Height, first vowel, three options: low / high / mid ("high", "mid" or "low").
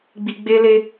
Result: high